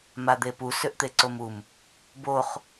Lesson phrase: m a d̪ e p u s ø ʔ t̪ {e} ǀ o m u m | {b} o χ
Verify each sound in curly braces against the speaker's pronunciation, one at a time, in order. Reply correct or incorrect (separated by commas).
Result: correct, correct